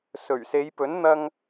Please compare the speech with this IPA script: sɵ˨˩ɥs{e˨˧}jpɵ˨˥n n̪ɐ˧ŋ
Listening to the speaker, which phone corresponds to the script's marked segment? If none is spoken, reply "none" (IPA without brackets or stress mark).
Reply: e˨˧